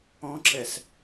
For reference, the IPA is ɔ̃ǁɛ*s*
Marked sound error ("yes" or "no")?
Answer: no